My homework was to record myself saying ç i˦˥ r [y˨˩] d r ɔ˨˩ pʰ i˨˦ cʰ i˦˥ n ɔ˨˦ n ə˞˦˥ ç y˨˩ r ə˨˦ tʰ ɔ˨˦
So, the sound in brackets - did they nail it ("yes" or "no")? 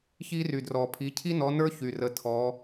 yes